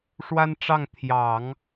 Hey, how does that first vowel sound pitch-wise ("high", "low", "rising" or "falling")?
high